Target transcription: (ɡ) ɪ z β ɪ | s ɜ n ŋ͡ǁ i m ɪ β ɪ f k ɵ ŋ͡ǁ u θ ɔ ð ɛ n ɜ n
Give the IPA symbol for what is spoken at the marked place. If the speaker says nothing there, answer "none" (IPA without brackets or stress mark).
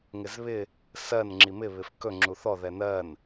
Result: ŋ